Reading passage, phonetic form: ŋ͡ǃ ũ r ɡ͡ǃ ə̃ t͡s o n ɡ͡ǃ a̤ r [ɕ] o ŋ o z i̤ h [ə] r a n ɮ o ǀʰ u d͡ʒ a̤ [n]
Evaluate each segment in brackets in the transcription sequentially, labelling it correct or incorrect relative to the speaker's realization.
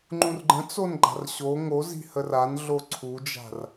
correct, correct, incorrect

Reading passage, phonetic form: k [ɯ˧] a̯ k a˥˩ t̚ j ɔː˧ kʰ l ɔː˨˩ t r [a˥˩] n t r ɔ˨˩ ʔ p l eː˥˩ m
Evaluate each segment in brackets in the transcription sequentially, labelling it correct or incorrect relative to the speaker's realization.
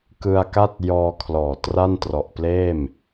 correct, correct

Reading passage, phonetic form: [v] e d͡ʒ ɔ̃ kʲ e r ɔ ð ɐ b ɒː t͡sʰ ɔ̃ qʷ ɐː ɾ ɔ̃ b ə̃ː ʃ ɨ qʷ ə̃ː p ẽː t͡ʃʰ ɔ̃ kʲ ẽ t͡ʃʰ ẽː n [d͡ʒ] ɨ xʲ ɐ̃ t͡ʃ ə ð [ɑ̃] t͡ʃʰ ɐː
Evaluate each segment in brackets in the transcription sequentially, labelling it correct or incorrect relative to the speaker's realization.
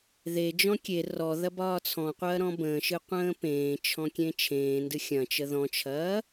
incorrect, incorrect, incorrect

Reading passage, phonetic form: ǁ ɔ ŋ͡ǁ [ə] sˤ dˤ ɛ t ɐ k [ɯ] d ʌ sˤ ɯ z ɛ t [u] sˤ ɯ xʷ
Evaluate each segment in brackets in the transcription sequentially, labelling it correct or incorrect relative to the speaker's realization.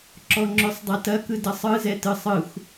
incorrect, correct, incorrect

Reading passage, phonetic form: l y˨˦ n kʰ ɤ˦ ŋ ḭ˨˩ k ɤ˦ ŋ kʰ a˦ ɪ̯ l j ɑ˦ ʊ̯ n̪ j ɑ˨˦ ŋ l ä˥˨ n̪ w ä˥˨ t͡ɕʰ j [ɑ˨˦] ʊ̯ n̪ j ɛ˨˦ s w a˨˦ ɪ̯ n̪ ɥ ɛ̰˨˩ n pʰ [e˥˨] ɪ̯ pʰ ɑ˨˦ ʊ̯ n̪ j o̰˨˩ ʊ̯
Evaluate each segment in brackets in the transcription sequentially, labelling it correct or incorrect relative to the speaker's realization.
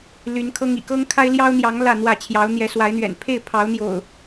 correct, correct

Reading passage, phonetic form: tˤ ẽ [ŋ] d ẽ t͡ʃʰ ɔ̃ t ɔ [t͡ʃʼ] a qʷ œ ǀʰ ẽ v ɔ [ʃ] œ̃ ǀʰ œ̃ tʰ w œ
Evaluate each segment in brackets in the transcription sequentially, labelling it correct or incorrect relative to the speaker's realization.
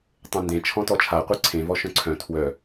incorrect, incorrect, correct

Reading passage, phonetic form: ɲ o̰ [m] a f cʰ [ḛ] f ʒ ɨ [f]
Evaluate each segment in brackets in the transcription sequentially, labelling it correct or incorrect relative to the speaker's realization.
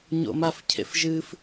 correct, correct, correct

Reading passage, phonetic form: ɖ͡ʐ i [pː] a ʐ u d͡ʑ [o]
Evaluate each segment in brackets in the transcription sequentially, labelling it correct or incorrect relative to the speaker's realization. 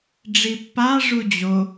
correct, correct

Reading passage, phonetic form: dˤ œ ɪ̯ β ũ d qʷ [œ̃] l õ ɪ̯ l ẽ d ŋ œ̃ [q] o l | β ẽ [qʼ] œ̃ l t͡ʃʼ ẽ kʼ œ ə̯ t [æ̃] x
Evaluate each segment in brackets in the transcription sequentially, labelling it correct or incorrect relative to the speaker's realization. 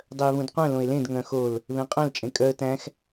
correct, incorrect, correct, correct

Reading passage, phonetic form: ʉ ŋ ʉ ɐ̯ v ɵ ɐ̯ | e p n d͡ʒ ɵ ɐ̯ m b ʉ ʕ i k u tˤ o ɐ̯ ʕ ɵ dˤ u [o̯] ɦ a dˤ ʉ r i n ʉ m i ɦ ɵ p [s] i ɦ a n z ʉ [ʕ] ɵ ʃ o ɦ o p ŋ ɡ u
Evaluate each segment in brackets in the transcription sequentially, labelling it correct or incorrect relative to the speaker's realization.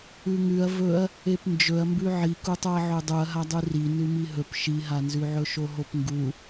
incorrect, incorrect, correct

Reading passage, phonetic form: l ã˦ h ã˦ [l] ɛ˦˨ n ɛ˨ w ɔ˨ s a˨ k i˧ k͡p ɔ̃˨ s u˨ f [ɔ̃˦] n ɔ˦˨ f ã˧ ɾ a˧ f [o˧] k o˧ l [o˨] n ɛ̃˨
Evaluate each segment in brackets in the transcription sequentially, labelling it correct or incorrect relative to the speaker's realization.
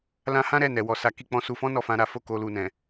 incorrect, incorrect, incorrect, incorrect

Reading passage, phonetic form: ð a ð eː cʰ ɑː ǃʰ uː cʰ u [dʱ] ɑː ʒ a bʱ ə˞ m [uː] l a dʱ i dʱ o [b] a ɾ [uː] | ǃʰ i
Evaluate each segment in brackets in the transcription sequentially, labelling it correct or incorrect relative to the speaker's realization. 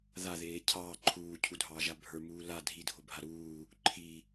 correct, correct, incorrect, correct

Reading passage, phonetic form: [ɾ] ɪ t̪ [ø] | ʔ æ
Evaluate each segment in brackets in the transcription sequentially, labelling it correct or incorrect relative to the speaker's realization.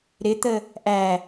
correct, incorrect

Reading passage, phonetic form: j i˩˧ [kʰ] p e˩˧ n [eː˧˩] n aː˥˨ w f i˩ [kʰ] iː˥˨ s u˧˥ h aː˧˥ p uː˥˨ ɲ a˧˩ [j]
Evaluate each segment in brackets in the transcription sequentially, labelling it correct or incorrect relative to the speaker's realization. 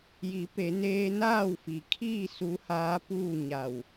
incorrect, incorrect, correct, incorrect

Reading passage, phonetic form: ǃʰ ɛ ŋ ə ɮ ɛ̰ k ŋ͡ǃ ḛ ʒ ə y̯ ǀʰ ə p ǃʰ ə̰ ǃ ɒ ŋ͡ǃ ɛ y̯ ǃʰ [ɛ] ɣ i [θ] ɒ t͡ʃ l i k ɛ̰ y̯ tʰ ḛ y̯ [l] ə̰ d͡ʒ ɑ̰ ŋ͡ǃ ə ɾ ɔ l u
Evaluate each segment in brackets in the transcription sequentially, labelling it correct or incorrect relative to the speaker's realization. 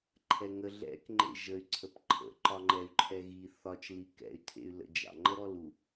correct, correct, correct

